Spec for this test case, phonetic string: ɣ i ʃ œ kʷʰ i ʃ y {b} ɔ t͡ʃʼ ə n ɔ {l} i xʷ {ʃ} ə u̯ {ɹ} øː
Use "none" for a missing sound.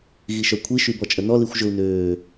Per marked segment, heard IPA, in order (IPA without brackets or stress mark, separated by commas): b, l, ʒ, n